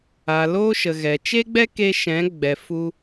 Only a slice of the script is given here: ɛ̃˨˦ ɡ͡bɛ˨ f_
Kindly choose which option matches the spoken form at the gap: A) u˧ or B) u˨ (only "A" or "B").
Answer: A